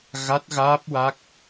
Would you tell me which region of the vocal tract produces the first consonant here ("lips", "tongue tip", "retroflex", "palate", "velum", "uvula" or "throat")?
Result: velum